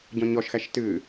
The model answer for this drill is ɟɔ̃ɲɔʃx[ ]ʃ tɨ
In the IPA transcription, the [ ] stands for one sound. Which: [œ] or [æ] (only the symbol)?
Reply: æ